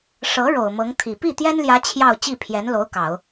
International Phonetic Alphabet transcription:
ʂ ɤ˧˥ ɻ o˨˩ ʊ̯ m ɤ˧˥ ŋ t̪ʰ i˨˩ p i˥˩ t̪ j ɛ˥ n l j ä˧˥ t͡ɕʰ j ɑ˥˧ ʊ̯ t͡ɕ i˥˩ pʰ j ɛ˧˥ n l o˧˥ ʊ̯ k ɑ˨˩˦ ʊ̯

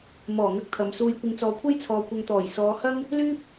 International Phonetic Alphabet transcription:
m ɔː˨˩ ŋ ɐ˥ k̚ t̪ʰ ɐ˨˧ m s uː˧ j kʷ ɪ˨˧ ŋ t͡s ɔː˨˧ kʷʰ ɐ˥ j t͡sʰ ɔː˨ kʷ ɐ˧ ŋ t̪ ɔː˨˩ j s ɔː˨˧ h ɐ˥ ŋ | l yː˥ p̚

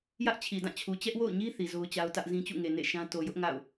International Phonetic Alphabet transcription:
j ä˦ ʔ t͡ɕʰ i˨ d ã˦˨ t͡ɕʰ u˨ t͡ɕ ɛ˦ ʔ w o̰˦˨ ʊ̯ ɲ i˦ θ i˨ z o˦ ʊ̯ t͡ɕ a˦ ʊ̯ t ä˦ ʔ z ĩ˦ t͡ɕ ṵ˦˨ ŋ e˨ n ḛ˦˨ ʃ ã˦ t o˨ j ʊ˦ ʔ ŋ a̰˦˨ ʊ̯

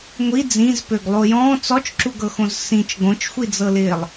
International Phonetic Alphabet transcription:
ŋʷ i d͡z ĩ z p ø ɡ lˠ o j ɔ̃ t͡s ɔ t͡ʃ ǁ u ɡ ɤ x õ z s ĩ t͡ʃ ɡ õ t͡ʃ xʷ i d͡z ɤ l ɪː lˠ

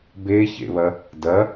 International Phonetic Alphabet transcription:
b e ç ḛ β ɐ | d ɐ

